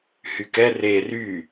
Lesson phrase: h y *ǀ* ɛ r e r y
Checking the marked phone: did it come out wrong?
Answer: yes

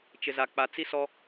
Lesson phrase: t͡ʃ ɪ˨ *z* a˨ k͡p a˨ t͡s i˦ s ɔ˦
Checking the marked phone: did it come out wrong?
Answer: no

